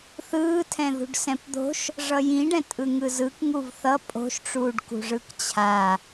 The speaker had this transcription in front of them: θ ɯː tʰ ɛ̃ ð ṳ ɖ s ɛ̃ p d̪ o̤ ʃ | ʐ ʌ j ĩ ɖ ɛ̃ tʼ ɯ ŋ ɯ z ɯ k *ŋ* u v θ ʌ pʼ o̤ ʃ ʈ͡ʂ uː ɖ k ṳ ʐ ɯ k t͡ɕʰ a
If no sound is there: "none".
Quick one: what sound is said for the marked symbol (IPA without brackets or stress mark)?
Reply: ŋ